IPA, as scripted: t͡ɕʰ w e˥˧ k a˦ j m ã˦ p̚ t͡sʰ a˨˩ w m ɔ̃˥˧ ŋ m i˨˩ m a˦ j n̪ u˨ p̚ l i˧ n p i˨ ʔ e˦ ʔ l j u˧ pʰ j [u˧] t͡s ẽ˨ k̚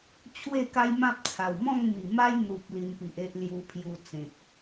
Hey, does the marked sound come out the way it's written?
yes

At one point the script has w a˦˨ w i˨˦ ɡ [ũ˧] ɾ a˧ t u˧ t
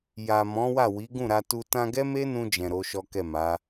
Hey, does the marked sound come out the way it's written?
no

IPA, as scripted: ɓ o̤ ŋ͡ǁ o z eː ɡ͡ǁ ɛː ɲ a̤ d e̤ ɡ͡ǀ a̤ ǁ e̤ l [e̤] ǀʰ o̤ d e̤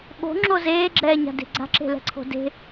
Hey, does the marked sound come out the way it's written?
no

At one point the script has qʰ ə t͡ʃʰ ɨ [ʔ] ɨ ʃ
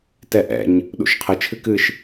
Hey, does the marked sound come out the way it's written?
no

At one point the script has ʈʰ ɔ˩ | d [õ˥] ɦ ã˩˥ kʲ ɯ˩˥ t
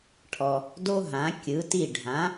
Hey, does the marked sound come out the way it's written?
no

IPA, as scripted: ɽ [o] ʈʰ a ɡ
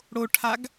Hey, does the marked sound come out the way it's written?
yes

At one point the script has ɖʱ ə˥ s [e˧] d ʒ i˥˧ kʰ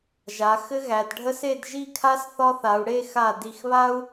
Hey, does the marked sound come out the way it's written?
no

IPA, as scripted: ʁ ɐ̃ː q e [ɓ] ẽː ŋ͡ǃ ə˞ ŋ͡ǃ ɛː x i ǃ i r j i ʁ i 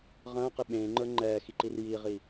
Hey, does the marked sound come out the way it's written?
yes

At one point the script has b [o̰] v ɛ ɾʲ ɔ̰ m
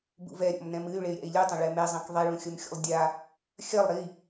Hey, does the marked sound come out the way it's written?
no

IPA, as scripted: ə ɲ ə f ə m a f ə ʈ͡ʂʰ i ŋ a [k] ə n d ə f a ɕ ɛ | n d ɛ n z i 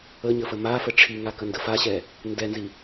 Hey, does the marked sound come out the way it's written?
yes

